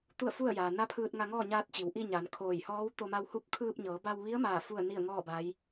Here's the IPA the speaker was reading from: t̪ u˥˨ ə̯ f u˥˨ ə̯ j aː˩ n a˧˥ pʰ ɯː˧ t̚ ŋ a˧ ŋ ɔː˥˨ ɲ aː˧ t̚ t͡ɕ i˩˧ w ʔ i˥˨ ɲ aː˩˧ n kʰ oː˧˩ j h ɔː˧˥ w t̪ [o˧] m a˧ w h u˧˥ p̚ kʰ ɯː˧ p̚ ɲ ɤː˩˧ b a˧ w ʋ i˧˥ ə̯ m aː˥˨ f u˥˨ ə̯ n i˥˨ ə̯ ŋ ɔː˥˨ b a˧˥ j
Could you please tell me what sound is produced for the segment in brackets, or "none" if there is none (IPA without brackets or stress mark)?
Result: o˧